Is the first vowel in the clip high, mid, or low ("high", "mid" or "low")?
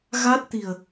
low